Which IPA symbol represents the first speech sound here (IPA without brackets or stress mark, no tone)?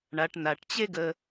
ɳ